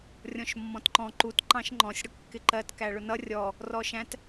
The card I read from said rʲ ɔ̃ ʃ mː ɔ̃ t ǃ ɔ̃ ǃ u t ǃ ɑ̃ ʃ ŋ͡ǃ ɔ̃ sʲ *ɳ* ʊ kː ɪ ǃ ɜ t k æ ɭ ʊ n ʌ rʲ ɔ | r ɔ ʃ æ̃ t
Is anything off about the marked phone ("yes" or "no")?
yes